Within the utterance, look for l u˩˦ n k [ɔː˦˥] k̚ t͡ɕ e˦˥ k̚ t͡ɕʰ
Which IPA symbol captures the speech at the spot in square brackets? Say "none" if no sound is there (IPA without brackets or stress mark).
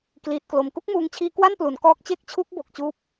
ɔː˦˥